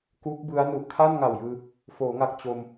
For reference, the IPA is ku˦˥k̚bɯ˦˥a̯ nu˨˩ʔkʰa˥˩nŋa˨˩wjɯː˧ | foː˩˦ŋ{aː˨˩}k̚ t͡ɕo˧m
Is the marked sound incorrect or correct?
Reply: incorrect